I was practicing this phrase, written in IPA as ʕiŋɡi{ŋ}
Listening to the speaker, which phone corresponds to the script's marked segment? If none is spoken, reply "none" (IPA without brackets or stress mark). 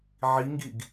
ɡ